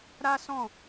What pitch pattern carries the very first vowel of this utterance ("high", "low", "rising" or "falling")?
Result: high